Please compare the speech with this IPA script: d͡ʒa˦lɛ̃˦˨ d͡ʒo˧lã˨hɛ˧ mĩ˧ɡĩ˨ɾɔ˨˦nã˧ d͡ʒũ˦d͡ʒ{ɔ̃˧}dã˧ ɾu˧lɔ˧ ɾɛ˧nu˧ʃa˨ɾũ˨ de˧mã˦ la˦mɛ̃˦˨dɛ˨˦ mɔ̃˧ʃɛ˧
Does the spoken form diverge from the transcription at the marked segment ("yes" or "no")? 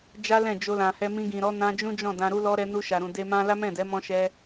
yes